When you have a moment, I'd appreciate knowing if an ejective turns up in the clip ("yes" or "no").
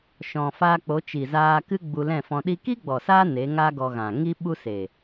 no